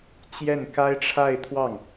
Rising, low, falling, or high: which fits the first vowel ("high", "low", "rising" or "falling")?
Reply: falling